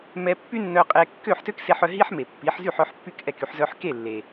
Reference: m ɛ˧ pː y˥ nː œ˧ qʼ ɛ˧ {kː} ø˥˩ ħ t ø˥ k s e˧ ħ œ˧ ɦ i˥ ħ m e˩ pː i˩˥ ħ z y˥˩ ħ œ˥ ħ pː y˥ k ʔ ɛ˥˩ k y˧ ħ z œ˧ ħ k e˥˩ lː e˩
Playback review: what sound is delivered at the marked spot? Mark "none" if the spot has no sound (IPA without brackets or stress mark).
kː